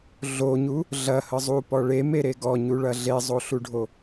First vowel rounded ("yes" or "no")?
yes